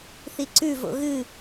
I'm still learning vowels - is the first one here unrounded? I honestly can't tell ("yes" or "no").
yes